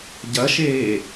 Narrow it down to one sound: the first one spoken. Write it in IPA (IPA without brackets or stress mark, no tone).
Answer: ɟ